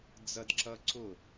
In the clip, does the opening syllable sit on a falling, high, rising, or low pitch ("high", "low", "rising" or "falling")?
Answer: high